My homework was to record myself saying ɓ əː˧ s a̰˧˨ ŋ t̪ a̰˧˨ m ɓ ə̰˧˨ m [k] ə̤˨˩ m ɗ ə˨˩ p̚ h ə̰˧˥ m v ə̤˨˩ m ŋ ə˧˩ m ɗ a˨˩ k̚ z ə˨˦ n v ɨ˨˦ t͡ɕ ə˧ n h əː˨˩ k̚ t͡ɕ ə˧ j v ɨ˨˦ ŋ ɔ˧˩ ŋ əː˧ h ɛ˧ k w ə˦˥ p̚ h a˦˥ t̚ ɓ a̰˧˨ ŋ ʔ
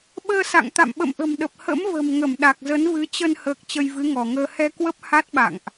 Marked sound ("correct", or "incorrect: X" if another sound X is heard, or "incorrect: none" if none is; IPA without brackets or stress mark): incorrect: ʔ